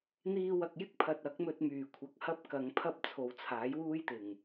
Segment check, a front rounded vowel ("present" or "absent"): present